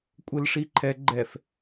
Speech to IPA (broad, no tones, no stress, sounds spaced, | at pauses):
kʷʼ ɘ l ʂ i ǃʰ ɛ ɡ͡ǃ ɛ f